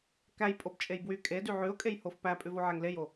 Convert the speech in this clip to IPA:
k æ j pʼ o b t͡ʃʼ e j b w y kʼ e d y ʕ ʉ ʊ̯ kʼ e j h o f p æ pʼ ʉ v o ʕ ɛ ŋ l e j o

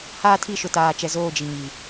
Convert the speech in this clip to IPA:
h aː˦ tʰ i˦˨ ʃ ʊ˨ t aː˨ t͡ʃ ɛ˨ z oː˦˨ d͡ʒ i˨ ɲ i˨

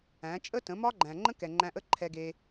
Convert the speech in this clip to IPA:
æ̃˨˦ t͡ʃʼ ə˦ t ə̃˨˦ m ɒ˦ ɡ͡ǃ æ̃˨ ŋ͡ǃ ə̃˦ k ɛ˨ ŋ͡ǃ æ̃˧ ʔ ə˦ ǃʰ ɛ˧ ɡ e˧

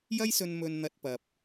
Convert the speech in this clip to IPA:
j ɐ˥ j s ɵ˧ n m ɵ˧ n n̪ ɐ˧ t̚ p ɐ˨ p̚

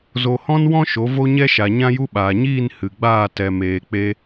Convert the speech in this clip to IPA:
z o˨ h ɔ̃˦ n w ɔ̃˦ ʃ o˨˦ v o˦ ɲ ɛ˦ ʃ a˨ ɲ ã˦ j u˦ ɓ aː˨ ɲ iː˦˨ n h ɨ˨ ɡ͡b aː˦˨ t ɛ˨ m eː˨ k͡p e˧

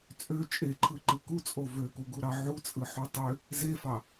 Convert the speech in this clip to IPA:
t͡sʼ ø t͡ʃʼ e ǃʰ ɯ ǃ ɯ k u t͡sʼ o v ø k u ɡ u ɾ ɑ ʕ u t͡sʼ ɯ ħ u tˤ ø | z e f ɑ

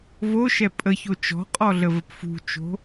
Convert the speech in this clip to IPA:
v o ʃ ɛ pʼ ə ç o t͡ʃ ɔ̤ qʼ ɔ ɮ ə v ə p f ṳ t͡ʃ o̤

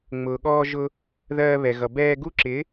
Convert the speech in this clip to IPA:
ŋ͡m ʊː˨ ɠ ɔː˧ ʒ ʊ˧ | ð ɜː˧ β ɛ˨ ɣ ʌ˨ b ɛː˧ ɡ u˦ ǁ ɪ˨˦

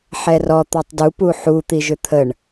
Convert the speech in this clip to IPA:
ħ ɛ r ɔ t̪ ɔ tˤ d u p u ħ u t̪ i ʒ ʏ t̪ʰ ə ɳ

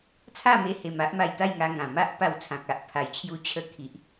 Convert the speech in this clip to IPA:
t͡sʰ a˥˧ m e˧ h e˧ m a˦ ʔ m a˧ j t̪ a˥˧ j ŋ a˧ ŋ ã˨˩ m a˦ ʔ p a˧ w t͡sʰ ã˨ k̚ a˨ ʔ pʰ a˨˩ j t͡ɕʰ j u˧ t͡ɕʰ ə˧ kʰ i˨ ʔ

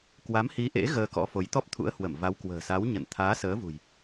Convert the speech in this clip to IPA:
k w a˨˦ m h i˨˦ ʔ ḛ˧˥ ɣ əː˧ k ɔ̰˧˥ f o˨˦ j t̪ ɔ˦˥ p̚ t̪ʰ ṵ˧˥ ə̯ h w ə˧˩ m v a˨˦ w k w ə̤ː˨˩ s a˨˦ w ɲ ə̰˧˨ n t̪ʰ aː˨˦ s əː˨˦ v ṳ˨˩ j

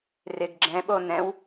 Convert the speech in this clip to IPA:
r ɪ ɡ ɡ͡ǁ ɛ̃ ɓ o n ɛ̃ w

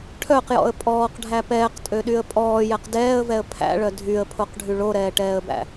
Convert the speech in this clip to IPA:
ʈʰ œ q j ɔ̰ ə̯ pʼ ɔː q ɖʱ æ p ɛː q tʼ ø ɗ y ə̯ pʼ ɔː j ɛ q d ɛː ə̯ v ɛ ə̯ pʰ æ̰ ɭ œ dʱ y ə̯ pʰ o q ɖʱ y ɭ o ɾ ɛː ʈ ɛː ə̯ b æ̰

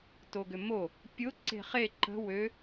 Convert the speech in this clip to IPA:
t o ɡ ʏ m o | pʲ ʊ ǀ e̤ χ e ǃ ə̤ w ø

